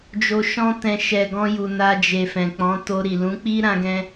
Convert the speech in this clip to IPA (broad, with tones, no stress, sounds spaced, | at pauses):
d͡ʒ o˨ ʃ ɔ̃˧ t ɛ̃˨ ʃ ɛ˨ ɡ ɔ̃˧ j u˨ n a˧ d͡ʒ e˨ f ɛ̃˨ k͡p ɔ̃˨˦ t o˧ ɾ i˨ l ũ˨˦ k͡p i˦ ɾ ã˦ ɡ ɛ̃˦